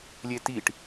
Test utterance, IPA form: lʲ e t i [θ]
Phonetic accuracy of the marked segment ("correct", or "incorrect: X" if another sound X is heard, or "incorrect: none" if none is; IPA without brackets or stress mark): incorrect: ʈ